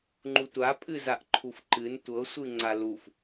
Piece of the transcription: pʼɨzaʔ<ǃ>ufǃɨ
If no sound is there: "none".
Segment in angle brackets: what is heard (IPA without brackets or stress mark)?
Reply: ǃʰ